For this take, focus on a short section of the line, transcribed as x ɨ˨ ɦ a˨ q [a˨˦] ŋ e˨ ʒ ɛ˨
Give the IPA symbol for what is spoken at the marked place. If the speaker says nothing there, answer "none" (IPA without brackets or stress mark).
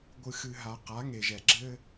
a˨˦